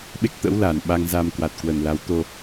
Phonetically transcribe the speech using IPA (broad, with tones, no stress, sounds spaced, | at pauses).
ɓ e˦˥ k̚ t̪ ə̰ː˧˥ w l aː˨˩ n ɓ a˧ ŋ z aː˧ m k w a˨˩ t̚ k w ə˨˩ n l a˨˦ w t̪ o˧